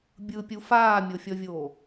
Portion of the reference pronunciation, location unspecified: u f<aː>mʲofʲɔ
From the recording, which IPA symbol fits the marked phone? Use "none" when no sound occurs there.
aː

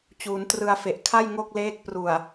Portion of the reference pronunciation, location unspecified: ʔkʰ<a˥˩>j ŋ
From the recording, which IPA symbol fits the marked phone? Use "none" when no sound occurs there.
a˥˩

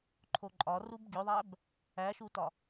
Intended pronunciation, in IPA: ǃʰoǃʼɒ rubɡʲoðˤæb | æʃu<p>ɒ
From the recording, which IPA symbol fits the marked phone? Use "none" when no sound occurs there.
t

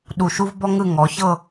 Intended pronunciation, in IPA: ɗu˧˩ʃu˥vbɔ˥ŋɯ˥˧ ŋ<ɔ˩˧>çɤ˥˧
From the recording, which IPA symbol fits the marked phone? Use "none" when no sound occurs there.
ɔ˩˧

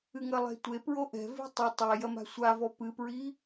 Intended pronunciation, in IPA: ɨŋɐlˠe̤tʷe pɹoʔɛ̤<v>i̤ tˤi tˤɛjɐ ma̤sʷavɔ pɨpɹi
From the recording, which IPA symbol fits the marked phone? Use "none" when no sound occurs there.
v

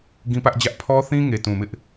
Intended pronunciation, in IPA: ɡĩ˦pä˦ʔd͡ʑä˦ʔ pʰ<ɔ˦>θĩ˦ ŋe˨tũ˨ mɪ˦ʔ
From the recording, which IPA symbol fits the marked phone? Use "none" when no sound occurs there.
ɔ˦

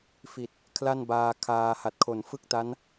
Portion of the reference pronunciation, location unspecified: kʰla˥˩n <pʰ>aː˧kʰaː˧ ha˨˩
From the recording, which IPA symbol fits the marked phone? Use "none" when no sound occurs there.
b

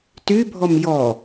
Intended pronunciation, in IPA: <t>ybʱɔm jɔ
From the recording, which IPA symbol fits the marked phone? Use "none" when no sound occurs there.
t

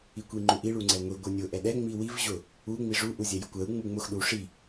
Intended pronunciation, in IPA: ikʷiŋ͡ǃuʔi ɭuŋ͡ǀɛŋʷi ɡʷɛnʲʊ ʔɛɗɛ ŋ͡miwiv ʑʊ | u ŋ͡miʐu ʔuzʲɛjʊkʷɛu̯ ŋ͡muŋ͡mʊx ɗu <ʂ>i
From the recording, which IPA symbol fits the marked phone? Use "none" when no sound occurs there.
ʂ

